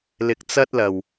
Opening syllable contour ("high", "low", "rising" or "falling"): rising